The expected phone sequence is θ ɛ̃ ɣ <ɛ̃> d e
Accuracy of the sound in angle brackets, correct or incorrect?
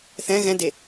correct